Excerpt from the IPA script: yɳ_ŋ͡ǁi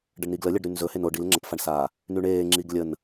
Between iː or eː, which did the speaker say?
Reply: eː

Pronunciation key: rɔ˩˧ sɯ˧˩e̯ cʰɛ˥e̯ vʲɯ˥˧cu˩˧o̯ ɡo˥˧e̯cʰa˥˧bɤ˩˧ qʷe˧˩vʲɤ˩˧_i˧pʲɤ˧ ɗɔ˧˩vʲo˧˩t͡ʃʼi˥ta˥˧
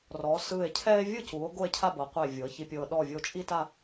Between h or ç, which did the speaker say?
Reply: ç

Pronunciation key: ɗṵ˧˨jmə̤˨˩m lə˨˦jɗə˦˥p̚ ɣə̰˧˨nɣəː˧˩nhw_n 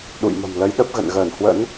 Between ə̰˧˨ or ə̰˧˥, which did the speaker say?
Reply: ə̰˧˥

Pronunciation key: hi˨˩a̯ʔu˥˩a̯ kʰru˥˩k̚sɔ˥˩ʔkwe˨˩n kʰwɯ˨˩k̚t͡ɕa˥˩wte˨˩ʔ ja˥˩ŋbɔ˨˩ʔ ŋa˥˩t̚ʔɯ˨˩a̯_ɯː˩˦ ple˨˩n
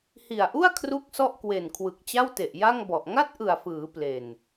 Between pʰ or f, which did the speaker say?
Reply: f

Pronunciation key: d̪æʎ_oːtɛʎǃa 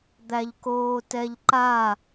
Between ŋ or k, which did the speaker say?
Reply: k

